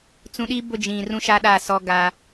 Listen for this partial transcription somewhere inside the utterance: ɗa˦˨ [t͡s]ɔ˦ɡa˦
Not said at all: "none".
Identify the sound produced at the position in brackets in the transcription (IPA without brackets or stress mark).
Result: s